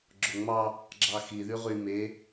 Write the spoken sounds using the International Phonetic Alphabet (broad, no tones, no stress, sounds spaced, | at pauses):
ɡ͡ǁ o ŋ͡m ɑ | ɡ͡ǁ ɑ x i ð y ʁ y m e